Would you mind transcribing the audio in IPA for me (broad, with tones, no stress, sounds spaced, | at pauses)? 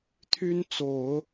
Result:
t̪ʰ y˥ n t͡s o˨˩˦ ʊ̯